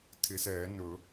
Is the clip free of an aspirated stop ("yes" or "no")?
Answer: no